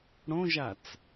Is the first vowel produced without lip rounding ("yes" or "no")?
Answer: no